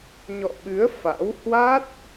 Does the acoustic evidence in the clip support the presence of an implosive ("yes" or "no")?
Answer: yes